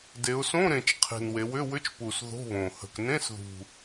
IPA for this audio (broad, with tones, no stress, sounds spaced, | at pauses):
d e˩˧ ʊ̯ s õ˧˥˧ ɾ ẽ˨˩ t͡ʃ qʰ e̤˨˩ n w e˩˧ w ʏ˧˥˧ w ʏ˧˥˧ t͡ʃ p u˨˩ s ð o̤˧˥˧ β õ˨˩ h ə̤˨˩ k n ẽ˧˥˧ s ð ṳ˨˩